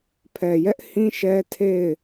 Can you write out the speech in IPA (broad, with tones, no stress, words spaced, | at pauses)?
pʰɛ˨jɛ˦ʔhĩ˦ʃɛ˦ tʰe˦˨ɪ̯